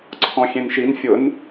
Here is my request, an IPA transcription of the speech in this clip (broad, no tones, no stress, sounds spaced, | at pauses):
ǀʰ ɔ̃ xʲ ẽ n ʃ i n fʲ ʊ n